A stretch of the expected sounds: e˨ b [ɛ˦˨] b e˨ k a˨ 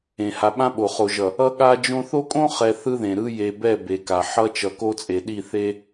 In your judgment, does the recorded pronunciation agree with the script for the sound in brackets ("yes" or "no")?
yes